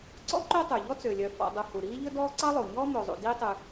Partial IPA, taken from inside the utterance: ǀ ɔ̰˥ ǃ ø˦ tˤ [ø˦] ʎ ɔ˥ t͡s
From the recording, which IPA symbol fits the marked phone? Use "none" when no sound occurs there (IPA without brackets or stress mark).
ø˩